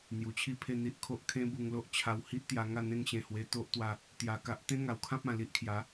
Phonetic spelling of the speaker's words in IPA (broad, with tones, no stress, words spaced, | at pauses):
n̪ju˨˩t͡ɕʰi˥˧pʰe˥˧ n̪i˦ʔkʰo˦ʔ kʰẽ˦bu˧ŋlo˦ʔt͡ɕʰa˧w hi˦ʔt̪ja˧ŋa˥˧ n̪ẽ˦ŋɕẽ˧hwe˧ t̪o˦ʔt̪wa˧ | t̪ja˧ka˦ʔ t̪ẽ˦ŋa˨˩wkʰã˦p̚ ã˨˩li˦ʔkʰja˨˦